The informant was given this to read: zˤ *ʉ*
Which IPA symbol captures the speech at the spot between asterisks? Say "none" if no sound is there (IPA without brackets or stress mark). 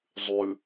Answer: ʉ